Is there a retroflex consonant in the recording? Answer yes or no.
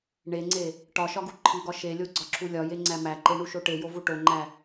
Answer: yes